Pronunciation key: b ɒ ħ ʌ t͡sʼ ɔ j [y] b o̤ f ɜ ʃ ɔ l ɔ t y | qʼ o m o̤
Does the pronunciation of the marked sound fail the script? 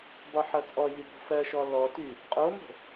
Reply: no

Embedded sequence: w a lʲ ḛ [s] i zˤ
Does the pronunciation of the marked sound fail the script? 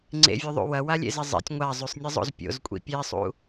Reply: yes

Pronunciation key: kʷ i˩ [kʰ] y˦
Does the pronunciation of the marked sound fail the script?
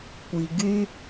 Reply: yes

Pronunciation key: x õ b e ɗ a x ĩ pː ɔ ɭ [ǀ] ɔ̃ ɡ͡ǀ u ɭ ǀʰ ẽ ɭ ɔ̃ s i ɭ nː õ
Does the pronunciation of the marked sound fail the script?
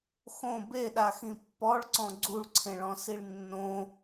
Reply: no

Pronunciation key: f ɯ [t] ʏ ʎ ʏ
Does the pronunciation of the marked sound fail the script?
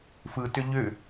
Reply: no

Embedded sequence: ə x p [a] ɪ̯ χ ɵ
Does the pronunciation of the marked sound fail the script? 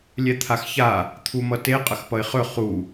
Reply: yes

